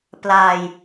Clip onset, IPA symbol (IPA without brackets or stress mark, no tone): p